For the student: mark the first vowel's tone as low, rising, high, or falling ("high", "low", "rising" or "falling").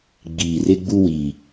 low